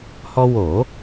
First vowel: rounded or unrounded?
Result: rounded